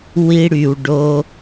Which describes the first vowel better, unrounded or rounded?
unrounded